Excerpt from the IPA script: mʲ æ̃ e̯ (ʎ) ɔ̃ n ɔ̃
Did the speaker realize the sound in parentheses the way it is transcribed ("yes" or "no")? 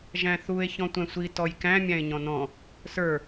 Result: no